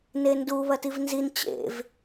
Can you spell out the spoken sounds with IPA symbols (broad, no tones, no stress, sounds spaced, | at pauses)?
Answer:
n e n d u β ɐ t i v n z i n t͡ɕ ḛ v